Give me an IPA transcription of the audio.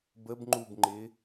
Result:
b ə b ŋ͡ǃ u b ŋ͡ǃ ɪː

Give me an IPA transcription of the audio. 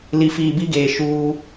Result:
l i˨ f iː˨ b i˦ ɡ eː˨ ʃ uː˦

